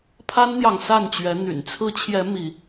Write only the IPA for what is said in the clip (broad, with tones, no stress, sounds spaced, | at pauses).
pʰ a˦ n n̪ j ɑ˨ ŋ s a˥˨ n t͡ɕ ɥ ɛ˨˦ n̪ y̰˨˩ n t͡sʰ ɹ̩˨˦ t͡ɕʰ j ɛ˨˦ m i˨˦